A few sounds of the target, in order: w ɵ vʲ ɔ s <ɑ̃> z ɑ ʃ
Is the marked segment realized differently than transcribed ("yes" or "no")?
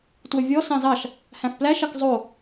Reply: no